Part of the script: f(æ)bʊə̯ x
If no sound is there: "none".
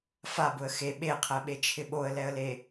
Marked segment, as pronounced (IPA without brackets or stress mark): a